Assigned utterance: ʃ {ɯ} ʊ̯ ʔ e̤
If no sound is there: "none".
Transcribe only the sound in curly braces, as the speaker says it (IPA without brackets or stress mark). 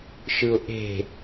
ɯ